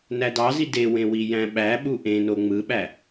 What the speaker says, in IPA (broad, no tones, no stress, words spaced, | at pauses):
nædɑzi dewẽ wijæ̃ɓæɓu ʔẽno ŋ͡mɯɓæ